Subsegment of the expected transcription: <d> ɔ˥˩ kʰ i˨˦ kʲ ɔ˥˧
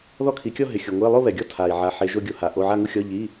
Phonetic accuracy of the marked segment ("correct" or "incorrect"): incorrect